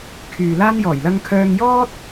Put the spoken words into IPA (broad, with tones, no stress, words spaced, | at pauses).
kʰyː˨laː˥njɔː˨˩j lɐ˧ŋkʰœː˧ŋ jɔː˥t̚